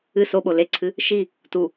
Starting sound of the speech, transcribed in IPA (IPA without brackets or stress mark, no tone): ɨ